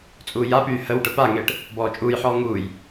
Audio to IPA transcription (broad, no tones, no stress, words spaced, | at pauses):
t͡sʼuːjapyː həw ʈəpaŋeːʈ | bɔːt͡ʃʼuːjħɔː ŋuːj